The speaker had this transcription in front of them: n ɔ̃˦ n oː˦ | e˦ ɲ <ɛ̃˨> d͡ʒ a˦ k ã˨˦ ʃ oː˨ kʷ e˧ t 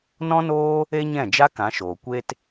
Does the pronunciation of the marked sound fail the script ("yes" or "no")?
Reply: yes